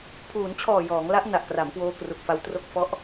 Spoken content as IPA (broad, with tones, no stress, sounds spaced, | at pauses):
pʰ uː˩˦ n t͡ɕʰ ɔː˨˩ j ɔː˩˦ ŋ l a˦˥ ʔ n a˨˩ ʔ k r a˩˦ m k w oː˧ k r u˨˩ k̚ f a˧ w t r o˦˥ k̚ f ɔ˦˥ ʔ